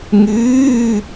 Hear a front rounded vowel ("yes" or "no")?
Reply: yes